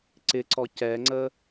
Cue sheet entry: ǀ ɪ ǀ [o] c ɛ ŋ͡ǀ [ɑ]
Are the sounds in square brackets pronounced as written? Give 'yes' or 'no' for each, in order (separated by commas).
no, no